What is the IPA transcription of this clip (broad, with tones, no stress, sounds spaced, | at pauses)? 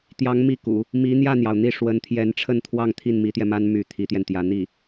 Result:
t̪ j ɑ˧˥ ŋ m i˥˩ k ṵ˨˩˦ | m i˧˥ n̪ j ä˥˩ n̪ j ɑ˩ ʊ̯ n̪ i˥˩ ʂ w ə˧˥ n t̪ʰ j ɛ˧˥ n ʈ͡ʂʰ ə˥˧ n t̪ʰ w ɑ˥˧ ŋ t̪ʰ i˥˩ n m i˧˥ t̪ j ɛ˧ m a˥ n m y˧˥ t̪ʰ i˧˥ t̪ j ɛ˧ n t̪ j ä˧˥ n̪ i˥˩